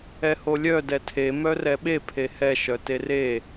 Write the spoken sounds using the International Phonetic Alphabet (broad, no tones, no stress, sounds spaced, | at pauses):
ɛ h o lʲ œ d ɛ tʰ e m œ r ɛ ɓ e pʰ e h ɛ ʃ œ t e r e